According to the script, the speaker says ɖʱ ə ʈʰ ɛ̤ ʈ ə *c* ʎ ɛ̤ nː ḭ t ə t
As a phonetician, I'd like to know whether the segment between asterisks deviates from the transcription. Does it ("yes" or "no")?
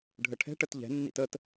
yes